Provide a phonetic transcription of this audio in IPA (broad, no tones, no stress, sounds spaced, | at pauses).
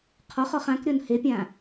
qʰ ɔ χ ɔ χ ã k ɾʲ ɔ n h e pʲ ã